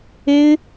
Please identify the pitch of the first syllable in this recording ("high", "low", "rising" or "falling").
high